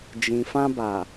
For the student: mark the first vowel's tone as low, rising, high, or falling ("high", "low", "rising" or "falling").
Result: low